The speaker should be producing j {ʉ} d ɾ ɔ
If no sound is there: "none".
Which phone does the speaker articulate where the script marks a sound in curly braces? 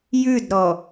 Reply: ʉ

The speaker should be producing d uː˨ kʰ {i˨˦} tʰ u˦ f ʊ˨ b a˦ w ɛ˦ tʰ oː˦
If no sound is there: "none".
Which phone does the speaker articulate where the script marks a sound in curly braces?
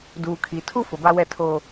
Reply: i˨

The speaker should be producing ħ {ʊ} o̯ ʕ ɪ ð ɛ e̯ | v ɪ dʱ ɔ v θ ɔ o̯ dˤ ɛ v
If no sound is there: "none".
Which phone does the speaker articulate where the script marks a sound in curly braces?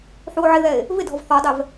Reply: u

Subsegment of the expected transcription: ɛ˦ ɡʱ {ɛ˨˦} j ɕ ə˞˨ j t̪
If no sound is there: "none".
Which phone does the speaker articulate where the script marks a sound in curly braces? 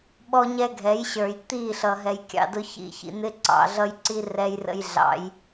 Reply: ɛ˨˦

